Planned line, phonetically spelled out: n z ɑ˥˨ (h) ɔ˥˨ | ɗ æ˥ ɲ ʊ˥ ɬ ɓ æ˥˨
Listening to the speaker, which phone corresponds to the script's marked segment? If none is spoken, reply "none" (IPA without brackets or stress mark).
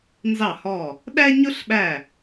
h